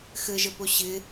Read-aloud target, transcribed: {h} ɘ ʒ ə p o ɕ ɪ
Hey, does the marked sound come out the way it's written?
no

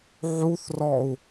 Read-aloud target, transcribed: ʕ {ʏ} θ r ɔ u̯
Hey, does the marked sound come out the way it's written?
no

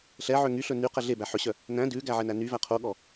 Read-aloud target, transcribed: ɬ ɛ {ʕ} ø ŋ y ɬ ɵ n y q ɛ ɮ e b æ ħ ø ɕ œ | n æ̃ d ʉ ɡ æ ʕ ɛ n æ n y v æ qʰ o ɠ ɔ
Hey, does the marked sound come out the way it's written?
yes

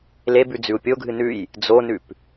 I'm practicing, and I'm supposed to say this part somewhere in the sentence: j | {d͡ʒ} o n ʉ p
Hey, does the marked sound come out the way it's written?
no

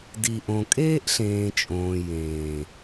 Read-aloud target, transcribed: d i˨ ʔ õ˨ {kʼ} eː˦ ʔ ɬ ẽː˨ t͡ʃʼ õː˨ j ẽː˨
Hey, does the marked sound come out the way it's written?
yes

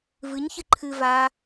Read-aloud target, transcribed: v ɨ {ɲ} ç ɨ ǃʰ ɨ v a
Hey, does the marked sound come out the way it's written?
yes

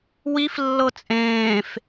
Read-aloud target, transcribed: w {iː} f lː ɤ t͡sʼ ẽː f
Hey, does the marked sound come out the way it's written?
no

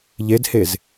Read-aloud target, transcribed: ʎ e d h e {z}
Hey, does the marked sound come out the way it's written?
yes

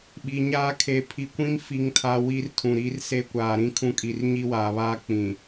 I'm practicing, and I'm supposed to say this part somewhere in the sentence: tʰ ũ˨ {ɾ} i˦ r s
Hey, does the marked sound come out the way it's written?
yes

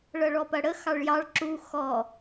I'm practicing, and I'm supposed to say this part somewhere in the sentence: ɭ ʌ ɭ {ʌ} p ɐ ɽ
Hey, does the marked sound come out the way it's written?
no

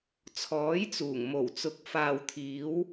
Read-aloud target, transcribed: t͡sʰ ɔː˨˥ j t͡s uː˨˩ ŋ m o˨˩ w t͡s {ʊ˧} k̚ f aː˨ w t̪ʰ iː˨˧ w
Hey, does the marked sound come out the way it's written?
no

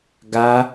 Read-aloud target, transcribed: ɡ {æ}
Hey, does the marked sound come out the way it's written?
no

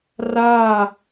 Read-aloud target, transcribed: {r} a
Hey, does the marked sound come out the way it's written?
yes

